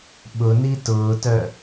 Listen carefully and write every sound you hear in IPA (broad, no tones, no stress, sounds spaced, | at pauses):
ɓ ʊ n i t ʊː t œ